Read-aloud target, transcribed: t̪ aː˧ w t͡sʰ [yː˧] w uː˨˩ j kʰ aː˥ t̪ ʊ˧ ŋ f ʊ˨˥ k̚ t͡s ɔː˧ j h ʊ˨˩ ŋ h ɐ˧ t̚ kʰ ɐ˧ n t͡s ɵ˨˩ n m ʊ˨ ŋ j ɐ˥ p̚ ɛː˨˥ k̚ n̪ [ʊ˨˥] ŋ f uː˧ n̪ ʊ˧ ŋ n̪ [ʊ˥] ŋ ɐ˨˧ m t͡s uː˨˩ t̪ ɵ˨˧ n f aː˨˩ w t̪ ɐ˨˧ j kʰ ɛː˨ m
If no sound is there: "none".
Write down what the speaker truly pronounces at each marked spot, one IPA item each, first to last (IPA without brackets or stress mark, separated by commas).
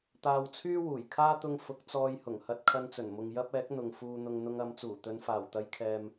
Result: yː˥, ʊ˨, ʊ˧